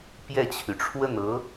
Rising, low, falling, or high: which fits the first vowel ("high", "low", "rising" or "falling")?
falling